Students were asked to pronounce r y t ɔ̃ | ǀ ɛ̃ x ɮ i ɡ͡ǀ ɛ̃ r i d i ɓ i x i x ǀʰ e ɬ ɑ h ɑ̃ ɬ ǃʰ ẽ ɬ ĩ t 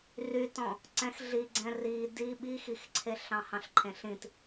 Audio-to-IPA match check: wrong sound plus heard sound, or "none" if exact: ɑ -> ɑ̃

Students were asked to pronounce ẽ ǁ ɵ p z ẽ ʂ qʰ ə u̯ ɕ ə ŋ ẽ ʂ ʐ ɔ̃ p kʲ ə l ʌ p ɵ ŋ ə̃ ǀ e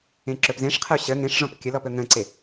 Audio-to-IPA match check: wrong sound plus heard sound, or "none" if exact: ʌ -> ɔ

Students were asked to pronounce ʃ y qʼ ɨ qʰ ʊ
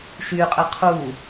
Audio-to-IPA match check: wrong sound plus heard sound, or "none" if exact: ʊ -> u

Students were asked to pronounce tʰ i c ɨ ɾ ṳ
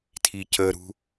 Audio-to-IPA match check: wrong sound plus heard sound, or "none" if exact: ɨ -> ə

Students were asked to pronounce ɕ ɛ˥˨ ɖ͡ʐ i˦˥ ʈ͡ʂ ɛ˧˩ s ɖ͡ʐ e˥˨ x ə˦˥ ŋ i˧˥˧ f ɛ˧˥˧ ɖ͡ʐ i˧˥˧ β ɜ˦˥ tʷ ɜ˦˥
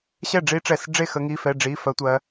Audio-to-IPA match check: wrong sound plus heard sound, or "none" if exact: β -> f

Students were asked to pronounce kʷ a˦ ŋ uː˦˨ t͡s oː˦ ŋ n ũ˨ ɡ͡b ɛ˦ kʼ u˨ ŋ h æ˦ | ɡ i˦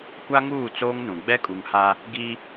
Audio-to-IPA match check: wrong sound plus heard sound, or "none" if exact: æ˦ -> a˦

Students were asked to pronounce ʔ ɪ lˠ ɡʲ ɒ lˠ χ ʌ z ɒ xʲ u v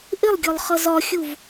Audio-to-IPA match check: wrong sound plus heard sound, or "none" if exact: none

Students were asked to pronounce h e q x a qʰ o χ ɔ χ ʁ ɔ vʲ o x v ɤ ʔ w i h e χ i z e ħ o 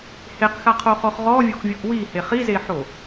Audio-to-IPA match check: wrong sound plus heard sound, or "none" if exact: v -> vʲ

